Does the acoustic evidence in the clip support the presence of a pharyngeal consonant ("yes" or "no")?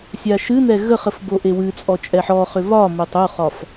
yes